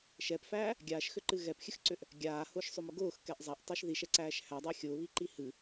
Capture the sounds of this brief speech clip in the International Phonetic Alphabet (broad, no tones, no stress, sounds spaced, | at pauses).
ʃ ɛ p f æː | ɡʲ aː ʃ x ʏ ǃ ɨ ɣ ɛ p xʲ ɨ x ǀ ʏ ʔ | ɡʲ aː h ʊː ʃ sˤ ʏ m ʊ ɡ ʊː x k ɛ ʔ zˤ a ʔ tˤ ʊː ʃ ð i ʃ ɛ ǀ æː ʃ h æ dˤ e xʲ ʊː β i ǃ i h ɨ